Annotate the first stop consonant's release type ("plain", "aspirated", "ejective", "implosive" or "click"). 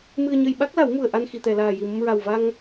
implosive